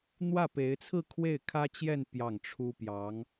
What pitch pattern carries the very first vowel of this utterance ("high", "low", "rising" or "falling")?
falling